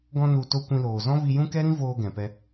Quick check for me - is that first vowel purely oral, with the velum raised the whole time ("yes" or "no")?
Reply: no